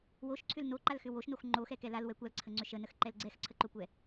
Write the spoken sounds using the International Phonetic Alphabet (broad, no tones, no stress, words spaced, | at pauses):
woʃǀʰʏl noǃalxʏ woʃnox ŋ͡ǃoxɛkɛ lalwɛ kʷalǀʰəŋ͡ǀʏ ʃənəxǃɛl ɡ͡ǀɛxǀʰəǃokʷɛ